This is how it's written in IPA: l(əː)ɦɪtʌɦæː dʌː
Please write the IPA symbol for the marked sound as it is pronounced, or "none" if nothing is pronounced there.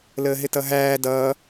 əː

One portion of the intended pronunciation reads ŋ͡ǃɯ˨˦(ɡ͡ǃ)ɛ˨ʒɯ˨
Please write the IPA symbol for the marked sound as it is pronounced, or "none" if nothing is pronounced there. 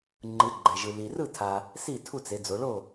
ɡ͡ǃ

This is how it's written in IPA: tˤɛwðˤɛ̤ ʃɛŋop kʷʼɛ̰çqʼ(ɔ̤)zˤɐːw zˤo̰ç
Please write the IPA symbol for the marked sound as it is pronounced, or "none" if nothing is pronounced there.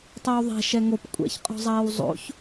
ɔ̤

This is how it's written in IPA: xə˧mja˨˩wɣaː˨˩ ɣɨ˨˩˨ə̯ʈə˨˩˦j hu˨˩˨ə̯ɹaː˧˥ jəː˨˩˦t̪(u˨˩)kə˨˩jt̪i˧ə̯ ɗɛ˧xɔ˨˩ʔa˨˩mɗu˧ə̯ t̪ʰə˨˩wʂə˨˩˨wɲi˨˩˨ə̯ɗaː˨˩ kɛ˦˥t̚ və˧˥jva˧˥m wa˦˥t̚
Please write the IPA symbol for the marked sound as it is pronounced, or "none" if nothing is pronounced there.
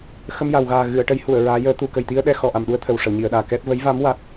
u˨˩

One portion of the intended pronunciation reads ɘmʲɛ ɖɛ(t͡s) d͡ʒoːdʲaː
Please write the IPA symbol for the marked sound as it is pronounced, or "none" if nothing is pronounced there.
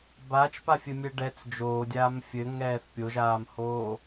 t͡s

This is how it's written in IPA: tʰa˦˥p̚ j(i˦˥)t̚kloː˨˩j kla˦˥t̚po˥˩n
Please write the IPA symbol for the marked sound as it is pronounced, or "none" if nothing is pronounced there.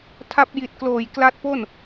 i˨˩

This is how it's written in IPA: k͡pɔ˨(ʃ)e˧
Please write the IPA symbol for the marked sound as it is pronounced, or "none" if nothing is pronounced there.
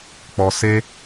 s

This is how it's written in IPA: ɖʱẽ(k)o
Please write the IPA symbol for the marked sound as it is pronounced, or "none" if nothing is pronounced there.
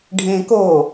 k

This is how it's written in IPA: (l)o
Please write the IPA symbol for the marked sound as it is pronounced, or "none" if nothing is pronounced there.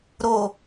ɾ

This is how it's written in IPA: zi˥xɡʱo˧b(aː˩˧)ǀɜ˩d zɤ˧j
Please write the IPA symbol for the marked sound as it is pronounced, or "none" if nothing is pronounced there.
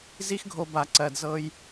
a˩˧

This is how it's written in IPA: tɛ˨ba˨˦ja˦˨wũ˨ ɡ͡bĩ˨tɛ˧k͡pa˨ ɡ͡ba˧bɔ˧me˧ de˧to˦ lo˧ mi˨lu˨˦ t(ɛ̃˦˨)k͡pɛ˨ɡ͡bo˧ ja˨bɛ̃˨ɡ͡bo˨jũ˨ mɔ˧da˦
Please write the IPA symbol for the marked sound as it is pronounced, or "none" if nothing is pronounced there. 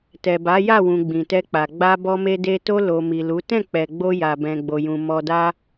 ɛ̃˦˨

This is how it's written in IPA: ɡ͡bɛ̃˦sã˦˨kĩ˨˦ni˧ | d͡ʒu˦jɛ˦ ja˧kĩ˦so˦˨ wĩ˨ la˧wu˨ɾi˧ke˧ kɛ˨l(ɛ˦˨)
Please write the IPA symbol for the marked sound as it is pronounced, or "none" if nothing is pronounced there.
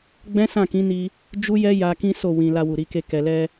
ɛ˧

